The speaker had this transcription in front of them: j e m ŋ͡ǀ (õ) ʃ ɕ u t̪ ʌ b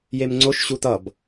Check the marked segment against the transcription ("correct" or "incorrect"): incorrect